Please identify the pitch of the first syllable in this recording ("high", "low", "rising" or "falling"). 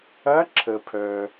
rising